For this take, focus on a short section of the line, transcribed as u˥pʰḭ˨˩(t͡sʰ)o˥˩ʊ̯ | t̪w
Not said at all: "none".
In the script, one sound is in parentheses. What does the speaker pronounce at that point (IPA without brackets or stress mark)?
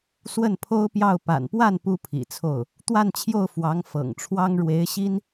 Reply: t͡sʰ